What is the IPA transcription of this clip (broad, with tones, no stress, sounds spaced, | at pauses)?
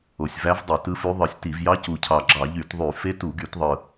o˨˩ sʲ v æ˧˥ v dˤ i˧˩˧ t ɯ˧˥ f y˧˥ ðˤ ɯ˧˩˧ sʲ t i˧˩˧ v j ɑ˧˥ c u˨˩ cʰ ɑ˨˩ ɡ͡ǁ ɑ˧˩˧ ʎ y˧˩˧ t ðˤ y˧˩˧ f e˧˥ t u˧˩˧ ɡ y˧˩˧ t ðˤ ɯ˨˩